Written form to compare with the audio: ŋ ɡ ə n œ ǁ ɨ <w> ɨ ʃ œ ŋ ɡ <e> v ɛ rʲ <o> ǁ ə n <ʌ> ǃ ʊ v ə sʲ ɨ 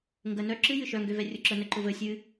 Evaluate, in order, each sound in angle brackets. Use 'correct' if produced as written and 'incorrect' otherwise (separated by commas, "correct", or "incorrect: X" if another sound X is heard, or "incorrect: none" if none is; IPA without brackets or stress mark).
incorrect: j, incorrect: ø, correct, incorrect: ə